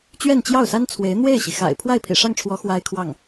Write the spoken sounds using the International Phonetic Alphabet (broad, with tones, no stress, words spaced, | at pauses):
t͡ɕɥɛ˥˧nt͡ɕjɑ˥˩ʊ̯sa˥nt͡sʰwe˧˥ɪ̯ n̪we˥˩ɪ̯ɕi˩xa̰˨˩ɪ̯ pʰwa˥˩ɪ̯pʰḭ˨˩ʂɑ˥˩ŋʈ͡ʂʰwɔ˧˥ xwa˥ɪ̯kʰwɑ˥˩ŋ